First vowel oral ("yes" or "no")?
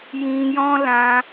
no